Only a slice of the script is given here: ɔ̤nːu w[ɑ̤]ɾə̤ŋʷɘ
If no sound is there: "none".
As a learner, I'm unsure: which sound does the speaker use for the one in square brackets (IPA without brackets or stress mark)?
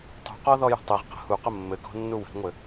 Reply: ə̤